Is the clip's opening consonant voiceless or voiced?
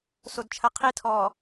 voiceless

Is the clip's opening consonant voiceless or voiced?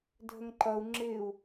voiced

